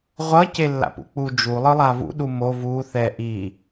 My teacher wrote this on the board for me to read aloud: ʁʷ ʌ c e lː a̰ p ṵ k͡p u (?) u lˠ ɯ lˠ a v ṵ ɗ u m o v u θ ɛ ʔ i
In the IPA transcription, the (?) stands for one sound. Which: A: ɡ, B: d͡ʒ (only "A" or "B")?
B